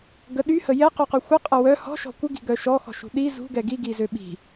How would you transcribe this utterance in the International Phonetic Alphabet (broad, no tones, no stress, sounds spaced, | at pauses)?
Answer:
ɡ ə ɗ y h ə j ɛ q y q u xʷ ə qʼ ə w œ h ɔ̤ ʃ ɔ̤ kʷ ə ɡ i̤ ɡ œ ʃ ɔ x ɔ̤ ʃ ṳ ɗ i z ṳ ɡ ɛ ɡ i ɡ i z ø ɓ i̤